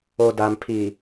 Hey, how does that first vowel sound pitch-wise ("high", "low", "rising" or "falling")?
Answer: low